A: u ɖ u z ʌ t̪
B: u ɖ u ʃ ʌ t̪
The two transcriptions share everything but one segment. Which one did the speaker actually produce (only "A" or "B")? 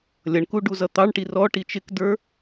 A